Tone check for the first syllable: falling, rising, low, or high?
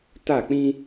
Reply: falling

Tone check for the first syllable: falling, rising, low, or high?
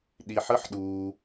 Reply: low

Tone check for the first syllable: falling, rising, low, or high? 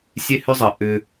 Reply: high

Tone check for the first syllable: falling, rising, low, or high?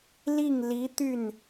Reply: falling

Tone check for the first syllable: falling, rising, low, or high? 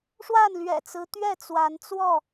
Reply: falling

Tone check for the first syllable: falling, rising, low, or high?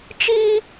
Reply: high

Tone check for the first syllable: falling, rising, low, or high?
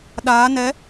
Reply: rising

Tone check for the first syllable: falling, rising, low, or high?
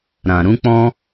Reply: low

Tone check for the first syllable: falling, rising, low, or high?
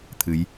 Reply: rising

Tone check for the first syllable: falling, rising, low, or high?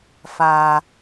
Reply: low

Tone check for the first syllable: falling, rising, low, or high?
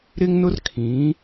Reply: high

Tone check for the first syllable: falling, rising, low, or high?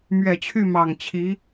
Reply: low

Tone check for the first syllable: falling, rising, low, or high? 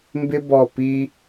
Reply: high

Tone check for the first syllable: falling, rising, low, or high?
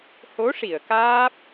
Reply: rising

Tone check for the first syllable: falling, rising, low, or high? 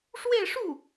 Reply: falling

